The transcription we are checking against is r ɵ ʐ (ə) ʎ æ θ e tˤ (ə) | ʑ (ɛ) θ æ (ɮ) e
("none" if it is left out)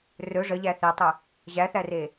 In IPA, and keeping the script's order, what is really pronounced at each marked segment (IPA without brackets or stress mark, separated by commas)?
ə, ʏ, æ, r